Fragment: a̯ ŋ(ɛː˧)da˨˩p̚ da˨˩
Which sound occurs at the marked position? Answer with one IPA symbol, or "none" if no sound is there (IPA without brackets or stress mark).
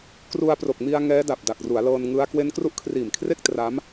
ɛː˦˥